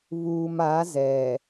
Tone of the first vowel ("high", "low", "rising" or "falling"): low